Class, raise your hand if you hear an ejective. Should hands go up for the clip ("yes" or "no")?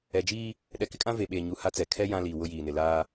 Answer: yes